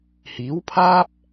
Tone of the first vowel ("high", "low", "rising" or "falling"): rising